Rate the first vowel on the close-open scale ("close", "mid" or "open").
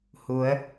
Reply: close